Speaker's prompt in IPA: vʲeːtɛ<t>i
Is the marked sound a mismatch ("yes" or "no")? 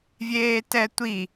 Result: yes